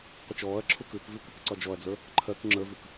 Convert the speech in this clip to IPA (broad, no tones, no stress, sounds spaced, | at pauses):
qʷ ə t͡ʃ ɔː ɐ̯ ǁʰ u k ʉː k v i kʷ i k ǀ ɒ d͡ʒ ɔ ɐ̯ d͡z ə˞ | ǃʰ ɜ k ŋ͡ǁ ə˞ v ʉ k